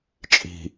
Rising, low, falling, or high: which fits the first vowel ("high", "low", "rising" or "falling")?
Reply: low